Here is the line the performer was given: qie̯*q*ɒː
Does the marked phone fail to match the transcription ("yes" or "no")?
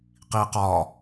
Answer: no